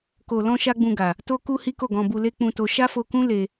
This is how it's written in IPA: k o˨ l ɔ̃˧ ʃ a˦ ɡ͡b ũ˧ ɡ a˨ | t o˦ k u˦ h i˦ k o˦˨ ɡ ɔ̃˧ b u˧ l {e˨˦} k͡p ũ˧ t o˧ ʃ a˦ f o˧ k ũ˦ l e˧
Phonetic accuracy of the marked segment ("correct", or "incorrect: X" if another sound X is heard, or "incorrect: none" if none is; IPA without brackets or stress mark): incorrect: e˦